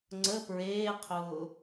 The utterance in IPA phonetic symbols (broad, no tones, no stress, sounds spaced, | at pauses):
ŋ͡ǀ ə p ɹ eː qʰ ʊː